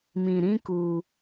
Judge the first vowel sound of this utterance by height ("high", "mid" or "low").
high